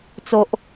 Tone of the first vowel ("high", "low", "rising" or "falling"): low